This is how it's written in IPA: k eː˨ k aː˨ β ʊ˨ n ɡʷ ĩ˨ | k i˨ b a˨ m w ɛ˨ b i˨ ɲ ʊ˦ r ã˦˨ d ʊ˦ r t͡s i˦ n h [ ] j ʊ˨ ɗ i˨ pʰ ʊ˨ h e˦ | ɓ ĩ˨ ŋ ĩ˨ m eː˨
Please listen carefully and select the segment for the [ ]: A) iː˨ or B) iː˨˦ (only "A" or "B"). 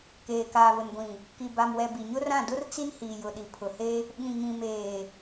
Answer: A